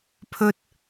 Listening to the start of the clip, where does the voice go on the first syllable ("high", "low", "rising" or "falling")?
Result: high